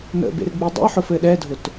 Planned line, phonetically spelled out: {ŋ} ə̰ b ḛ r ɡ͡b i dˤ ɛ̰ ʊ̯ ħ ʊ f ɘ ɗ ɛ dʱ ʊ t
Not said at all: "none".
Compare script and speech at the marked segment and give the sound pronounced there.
n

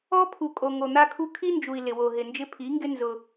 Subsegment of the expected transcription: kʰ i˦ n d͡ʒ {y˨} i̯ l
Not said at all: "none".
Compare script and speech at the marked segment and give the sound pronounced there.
u˨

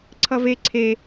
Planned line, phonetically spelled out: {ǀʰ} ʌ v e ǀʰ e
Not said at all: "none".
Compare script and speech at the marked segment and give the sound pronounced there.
ǀʰ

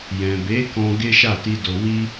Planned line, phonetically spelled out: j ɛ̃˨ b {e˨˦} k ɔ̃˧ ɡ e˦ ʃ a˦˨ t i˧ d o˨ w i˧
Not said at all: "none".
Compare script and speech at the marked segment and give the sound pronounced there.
e˨˦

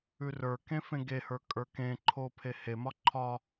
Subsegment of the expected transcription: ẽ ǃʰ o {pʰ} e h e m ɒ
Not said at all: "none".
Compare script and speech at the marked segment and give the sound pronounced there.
pʰ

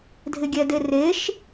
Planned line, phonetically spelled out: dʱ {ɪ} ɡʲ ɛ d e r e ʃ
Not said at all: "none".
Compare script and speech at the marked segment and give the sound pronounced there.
ɪ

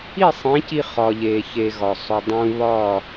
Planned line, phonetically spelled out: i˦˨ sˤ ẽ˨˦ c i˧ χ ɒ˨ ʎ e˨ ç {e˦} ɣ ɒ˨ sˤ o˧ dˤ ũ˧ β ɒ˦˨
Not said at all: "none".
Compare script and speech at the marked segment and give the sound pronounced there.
e˧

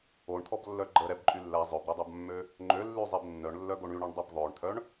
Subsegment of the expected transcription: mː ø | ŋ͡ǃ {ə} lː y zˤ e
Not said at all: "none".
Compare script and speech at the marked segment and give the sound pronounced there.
ø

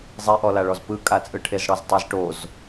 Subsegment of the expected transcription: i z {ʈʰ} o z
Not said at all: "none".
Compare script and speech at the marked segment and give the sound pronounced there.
ʈ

